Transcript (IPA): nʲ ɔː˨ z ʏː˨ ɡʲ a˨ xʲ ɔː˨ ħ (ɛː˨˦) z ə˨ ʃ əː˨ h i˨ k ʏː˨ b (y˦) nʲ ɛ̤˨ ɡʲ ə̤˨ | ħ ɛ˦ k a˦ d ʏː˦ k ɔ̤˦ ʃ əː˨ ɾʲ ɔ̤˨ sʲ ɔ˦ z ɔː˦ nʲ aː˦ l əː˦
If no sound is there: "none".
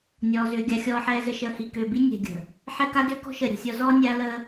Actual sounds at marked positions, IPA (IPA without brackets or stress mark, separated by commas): ɛː˨, i˦